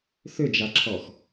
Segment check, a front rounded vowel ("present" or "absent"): present